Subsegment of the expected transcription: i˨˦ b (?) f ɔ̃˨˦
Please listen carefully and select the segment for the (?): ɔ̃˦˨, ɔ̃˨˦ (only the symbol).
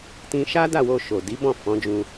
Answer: ɔ̃˦˨